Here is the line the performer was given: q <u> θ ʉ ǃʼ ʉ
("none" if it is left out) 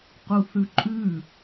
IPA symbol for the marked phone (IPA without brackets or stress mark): u